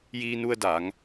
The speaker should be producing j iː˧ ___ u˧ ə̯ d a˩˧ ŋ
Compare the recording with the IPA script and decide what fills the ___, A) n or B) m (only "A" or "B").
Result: A